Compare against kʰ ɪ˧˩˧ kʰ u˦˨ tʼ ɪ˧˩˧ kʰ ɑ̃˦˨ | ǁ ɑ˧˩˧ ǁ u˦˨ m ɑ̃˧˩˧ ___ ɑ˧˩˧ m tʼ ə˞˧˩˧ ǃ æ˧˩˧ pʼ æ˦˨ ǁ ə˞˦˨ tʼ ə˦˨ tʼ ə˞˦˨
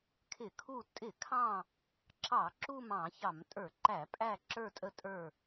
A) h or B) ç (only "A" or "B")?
B